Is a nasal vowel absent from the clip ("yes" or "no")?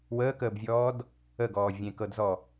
no